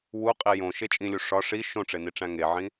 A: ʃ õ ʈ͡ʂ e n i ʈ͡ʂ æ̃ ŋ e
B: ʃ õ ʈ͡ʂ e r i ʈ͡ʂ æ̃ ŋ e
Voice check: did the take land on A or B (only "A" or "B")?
A